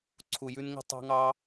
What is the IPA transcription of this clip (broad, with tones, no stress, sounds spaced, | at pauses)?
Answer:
ǀʰ u˧ j ʉ˦ n ŋ ə̤˦ tˤ ɑ̤˦ ŋ ɑ˦